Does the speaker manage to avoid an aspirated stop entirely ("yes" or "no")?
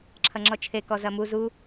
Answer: no